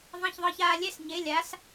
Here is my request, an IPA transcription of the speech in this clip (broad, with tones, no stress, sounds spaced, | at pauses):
ðˤ ã˧˥˧ ç ðˤ ɤː˧ ç aː˧ lʲ ɛ˧˥˧ s ɲ e˨˥ lʲ a˨˥ s